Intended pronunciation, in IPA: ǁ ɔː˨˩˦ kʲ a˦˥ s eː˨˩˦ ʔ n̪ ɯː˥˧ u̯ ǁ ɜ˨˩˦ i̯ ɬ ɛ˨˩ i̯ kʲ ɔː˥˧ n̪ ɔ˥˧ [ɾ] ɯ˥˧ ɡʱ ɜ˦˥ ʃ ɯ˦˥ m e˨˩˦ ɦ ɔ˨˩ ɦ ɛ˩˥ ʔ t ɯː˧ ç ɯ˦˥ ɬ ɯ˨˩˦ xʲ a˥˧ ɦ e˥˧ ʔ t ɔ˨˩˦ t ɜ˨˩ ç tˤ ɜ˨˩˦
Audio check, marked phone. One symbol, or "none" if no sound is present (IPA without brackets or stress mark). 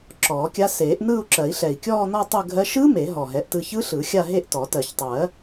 tˤ